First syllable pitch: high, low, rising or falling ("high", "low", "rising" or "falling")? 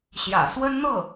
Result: low